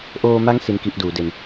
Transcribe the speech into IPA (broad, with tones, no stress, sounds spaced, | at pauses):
ʔ oː˧ m a˦˥ ŋ s i˦˥ n k i˦˥ ʔ d uː˩˦ d e˧ n